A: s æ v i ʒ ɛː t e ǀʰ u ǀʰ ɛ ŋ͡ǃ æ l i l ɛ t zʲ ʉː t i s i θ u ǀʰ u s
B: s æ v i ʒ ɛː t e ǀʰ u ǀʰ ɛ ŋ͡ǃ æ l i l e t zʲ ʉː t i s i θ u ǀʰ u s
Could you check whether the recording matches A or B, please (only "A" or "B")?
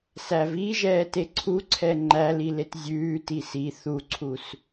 B